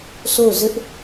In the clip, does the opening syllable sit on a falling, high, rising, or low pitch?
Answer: falling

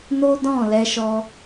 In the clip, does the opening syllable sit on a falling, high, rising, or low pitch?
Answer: high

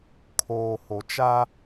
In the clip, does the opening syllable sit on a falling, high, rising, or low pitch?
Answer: low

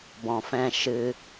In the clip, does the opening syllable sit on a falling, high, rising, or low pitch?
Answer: low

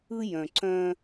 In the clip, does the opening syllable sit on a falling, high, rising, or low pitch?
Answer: high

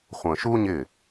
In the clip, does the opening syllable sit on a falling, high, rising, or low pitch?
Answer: low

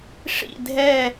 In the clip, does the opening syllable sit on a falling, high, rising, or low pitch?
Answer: falling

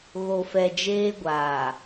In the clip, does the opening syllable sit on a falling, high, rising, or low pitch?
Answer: low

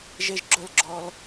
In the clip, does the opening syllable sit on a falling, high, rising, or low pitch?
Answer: high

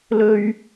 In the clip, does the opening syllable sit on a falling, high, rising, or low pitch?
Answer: high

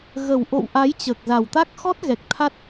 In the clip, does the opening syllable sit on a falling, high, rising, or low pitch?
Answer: low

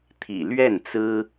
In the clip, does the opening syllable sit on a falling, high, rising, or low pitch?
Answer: low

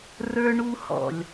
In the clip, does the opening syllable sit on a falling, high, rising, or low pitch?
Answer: high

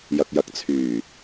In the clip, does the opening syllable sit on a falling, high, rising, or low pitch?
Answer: low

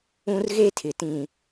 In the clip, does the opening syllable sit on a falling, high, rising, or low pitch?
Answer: high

